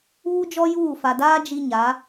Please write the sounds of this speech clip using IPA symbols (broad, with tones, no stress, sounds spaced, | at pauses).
uː˦ d͡ʒ ɔ˦ j uː˦˨ f a˨ d aː˦ d͡ʒ i˦ ɲ a˨˦